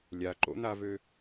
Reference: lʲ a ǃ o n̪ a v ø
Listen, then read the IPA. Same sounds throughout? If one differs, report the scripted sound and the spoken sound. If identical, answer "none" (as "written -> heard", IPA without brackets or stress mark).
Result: o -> o̰